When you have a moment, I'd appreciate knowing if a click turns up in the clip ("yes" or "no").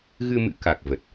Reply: no